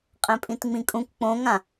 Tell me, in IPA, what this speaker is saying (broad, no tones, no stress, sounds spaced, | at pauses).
qʼ ɛ̃ pʼ ĩ t ŋ͡m ĩ kʼ ũ k k͡p õ ŋ ã